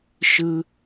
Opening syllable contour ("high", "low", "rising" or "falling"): high